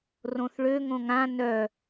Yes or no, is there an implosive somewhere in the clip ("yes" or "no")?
no